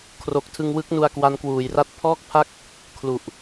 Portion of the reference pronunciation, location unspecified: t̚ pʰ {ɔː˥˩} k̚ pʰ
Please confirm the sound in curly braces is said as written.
yes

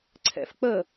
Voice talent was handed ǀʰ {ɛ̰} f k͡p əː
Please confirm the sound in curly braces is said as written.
yes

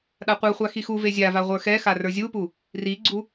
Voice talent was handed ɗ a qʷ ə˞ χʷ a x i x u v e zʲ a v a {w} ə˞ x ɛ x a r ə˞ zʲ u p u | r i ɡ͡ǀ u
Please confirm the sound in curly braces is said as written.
no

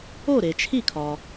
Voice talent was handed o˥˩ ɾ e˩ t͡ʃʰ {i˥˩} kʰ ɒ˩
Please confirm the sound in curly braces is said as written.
yes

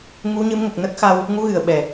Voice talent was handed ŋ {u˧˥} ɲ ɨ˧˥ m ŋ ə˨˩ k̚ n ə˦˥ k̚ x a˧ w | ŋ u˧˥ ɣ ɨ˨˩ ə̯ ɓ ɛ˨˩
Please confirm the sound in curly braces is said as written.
yes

